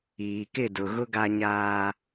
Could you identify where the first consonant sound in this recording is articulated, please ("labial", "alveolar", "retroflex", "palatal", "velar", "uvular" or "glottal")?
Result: velar